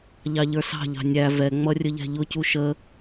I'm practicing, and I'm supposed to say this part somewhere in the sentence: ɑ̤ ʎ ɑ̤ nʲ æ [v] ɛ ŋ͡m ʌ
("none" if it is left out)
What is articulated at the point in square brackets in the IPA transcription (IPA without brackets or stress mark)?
v